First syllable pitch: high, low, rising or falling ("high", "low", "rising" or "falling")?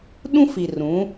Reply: high